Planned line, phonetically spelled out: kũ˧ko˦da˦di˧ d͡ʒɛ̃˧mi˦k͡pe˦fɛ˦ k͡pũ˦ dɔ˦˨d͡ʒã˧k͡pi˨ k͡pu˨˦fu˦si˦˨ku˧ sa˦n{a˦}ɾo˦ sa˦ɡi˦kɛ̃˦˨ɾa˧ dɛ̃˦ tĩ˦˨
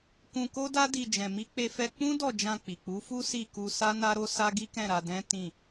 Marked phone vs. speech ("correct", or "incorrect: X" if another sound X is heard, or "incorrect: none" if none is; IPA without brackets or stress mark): correct